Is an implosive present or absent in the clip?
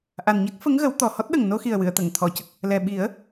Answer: present